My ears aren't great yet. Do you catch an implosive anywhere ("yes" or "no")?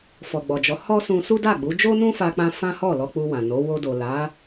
no